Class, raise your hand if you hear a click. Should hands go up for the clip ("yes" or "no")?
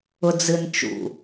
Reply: no